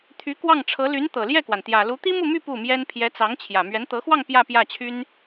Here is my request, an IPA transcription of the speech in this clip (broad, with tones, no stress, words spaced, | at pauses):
t̪ʰy˧˥kwɑ˥˩ŋʈ͡ʂʰɤ˧˥ ly˧˥nt̪ɤ˨˩ljɛ˥˩kwa˩n t̪jä˨˩lu˧˥ t̪i˥mu˥˧my˥˧ pu˥˩mjɛ˥n pʰjɛ˧˥t͡sɑ˧˥ŋ t͡ɕʰjä˨˩ mɥɛ˧˥nt̪ɤ˧˥xwɑ˥˧ŋ pjä˥˧pjä˥˩t͡ɕʰy˥n